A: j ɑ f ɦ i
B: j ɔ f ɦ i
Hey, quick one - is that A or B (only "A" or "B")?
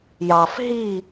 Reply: A